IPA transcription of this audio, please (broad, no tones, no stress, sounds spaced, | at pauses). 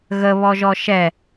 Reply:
ɣ ə β ɔ ʒ ɔ ʃ ɛ